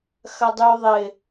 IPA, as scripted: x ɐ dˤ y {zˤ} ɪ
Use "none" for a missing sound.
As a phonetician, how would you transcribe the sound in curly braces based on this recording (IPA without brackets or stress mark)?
ðˤ